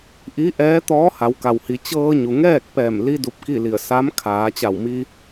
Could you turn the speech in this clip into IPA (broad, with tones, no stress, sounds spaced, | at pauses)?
ʔ i˧˥ ʔ ɛː˧˥ t̪ ɔː˧˥ h a˩˧ w k a˩ w h i˩˧ t͡ɕ ɤː˧ ɲ u˩ ŋ ɛː˥˨ k̚ p ɛː˧˩ m l i˧ d u˧ p̚ k i˥˨ l i˧˩ ə̯ s a˧˥ m kʰ aː˩˧ t͡ɕ a˧˩ w m i˧